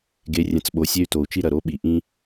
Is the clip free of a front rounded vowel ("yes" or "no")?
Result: no